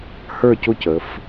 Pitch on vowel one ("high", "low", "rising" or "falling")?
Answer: falling